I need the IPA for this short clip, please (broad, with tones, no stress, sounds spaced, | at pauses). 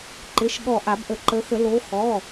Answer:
ǃ ɪ˩˧˩ ʃ ɠ ɔ˧˩ ʔ a˨˩˦ b ʔ ə˨˩˦ ǃ ə˨˦ x ə˨˩˦ l o˨˦ x ɔ˩˧˩